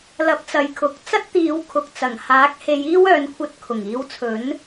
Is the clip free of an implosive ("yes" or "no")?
yes